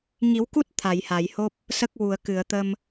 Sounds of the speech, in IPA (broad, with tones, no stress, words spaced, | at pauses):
ŋi˨˩˦wku˦˥t̚ t̪ʰa˨˩˨jha˨˩˨jho˦˥p̚ | sə˦˥k̚ wu˨˩˨ə̯kɨ˨˩˨ə̯t̪ə˧m